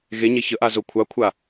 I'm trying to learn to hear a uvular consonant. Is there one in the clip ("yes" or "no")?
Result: no